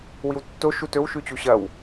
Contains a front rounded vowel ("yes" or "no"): no